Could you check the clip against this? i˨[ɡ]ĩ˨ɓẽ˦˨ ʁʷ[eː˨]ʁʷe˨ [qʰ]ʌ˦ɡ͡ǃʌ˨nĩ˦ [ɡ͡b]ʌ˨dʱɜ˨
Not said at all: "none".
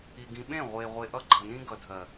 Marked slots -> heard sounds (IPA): ɡ, eː˨, ʔ, ɡ

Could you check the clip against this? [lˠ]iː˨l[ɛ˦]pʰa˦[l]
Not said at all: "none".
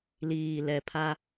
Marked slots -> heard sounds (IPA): l, ɛ˨, none

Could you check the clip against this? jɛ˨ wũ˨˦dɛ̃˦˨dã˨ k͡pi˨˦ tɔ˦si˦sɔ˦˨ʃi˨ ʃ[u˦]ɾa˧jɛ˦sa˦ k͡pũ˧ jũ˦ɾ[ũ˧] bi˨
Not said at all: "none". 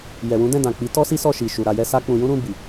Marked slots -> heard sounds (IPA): u˨, ũ˧

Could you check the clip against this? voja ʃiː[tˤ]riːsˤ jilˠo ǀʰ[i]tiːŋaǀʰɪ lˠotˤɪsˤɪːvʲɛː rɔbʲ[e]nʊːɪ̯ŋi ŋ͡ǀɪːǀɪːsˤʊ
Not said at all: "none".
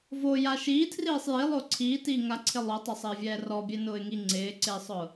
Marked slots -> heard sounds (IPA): tʰ, iː, e

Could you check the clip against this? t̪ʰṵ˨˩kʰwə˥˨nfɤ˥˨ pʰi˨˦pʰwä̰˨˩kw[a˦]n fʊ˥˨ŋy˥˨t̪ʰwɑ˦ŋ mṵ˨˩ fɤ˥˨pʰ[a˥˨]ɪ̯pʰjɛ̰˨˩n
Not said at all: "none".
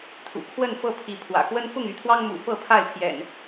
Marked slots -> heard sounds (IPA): ə˦, a˥˨

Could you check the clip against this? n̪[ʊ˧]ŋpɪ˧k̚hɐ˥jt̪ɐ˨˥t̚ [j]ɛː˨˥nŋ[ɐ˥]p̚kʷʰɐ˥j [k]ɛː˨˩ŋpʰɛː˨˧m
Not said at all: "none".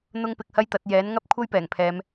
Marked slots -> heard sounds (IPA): ʊ˥, j, ɐ˥, p

